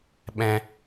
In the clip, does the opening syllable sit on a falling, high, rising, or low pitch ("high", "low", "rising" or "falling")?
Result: high